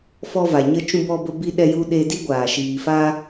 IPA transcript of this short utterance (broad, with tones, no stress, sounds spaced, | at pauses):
f ɔ˧ v a˨ ɲ ə˧ t͡ʃ ũ˧ b ɔ˧ b ə˧ b i˧ ɗ ɛ˧ j u˧ ɗ e˧ d i˦ ɡʷ aː˨ ʃ iː˨ f a˧